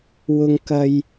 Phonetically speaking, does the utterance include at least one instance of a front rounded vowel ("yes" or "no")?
no